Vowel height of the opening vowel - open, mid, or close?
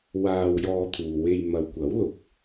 open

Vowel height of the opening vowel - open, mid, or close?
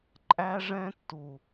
open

